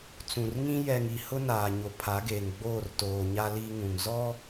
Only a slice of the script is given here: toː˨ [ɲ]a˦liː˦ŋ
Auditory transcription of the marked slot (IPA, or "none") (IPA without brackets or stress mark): ɲ